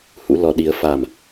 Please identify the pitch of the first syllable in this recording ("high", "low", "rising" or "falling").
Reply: rising